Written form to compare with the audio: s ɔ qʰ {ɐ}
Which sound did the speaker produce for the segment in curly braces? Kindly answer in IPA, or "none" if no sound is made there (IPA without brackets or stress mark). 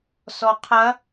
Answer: ɐ